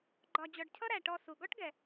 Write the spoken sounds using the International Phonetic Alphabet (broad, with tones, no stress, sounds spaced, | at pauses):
ɡ͡ǃ ɒ˨ d͡ʑ ɔ˨ ɖ cʰ ʌ˦ ɾ æ˩ ʈ ɔ˨ s u˩ ɡ ɔ˥ ʈ ɡ ɛ˩